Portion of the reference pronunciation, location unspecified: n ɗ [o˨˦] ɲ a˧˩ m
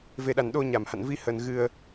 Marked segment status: incorrect: o˧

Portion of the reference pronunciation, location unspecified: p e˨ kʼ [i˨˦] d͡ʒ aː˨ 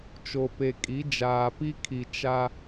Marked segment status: correct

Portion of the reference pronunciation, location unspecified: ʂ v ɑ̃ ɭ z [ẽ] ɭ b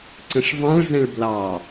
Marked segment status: incorrect: ɛ̃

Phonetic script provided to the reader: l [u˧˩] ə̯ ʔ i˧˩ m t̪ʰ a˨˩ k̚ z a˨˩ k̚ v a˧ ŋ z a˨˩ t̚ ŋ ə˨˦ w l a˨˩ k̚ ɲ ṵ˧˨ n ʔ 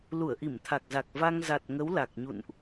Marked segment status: correct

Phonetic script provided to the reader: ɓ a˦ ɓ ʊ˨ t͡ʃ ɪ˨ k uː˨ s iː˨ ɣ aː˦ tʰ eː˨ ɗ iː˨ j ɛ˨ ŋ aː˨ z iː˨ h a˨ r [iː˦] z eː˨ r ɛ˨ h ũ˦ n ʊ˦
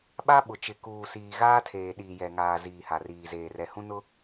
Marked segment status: incorrect: iː˨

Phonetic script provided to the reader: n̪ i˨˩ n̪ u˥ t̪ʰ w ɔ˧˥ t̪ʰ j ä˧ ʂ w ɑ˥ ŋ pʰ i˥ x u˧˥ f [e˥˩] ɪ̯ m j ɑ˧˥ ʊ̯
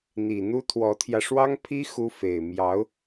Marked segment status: incorrect: e˨˩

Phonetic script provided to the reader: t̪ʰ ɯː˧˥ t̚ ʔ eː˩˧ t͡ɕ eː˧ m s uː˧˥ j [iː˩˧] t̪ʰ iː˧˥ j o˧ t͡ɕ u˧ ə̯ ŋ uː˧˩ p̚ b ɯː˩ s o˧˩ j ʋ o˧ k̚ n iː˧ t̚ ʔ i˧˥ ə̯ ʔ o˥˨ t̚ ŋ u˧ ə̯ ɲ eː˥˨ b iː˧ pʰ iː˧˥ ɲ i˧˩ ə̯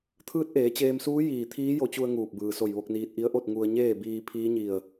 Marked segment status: incorrect: iː˧˩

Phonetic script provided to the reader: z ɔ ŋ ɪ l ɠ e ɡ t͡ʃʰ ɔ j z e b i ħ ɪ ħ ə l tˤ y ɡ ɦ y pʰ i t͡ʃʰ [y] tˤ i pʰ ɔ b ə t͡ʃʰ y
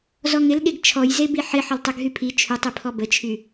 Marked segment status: correct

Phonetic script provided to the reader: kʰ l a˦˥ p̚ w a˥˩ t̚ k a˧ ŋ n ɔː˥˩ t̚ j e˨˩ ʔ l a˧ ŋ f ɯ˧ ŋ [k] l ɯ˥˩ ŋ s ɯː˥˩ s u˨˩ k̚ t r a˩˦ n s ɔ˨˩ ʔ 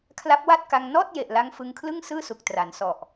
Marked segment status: incorrect: kʰ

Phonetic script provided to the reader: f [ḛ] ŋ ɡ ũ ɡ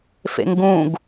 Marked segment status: correct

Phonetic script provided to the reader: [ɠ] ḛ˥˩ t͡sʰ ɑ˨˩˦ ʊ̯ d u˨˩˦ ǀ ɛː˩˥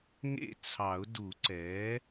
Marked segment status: incorrect: ŋ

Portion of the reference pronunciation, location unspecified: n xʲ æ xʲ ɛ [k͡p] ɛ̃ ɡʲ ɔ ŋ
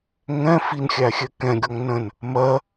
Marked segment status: incorrect: k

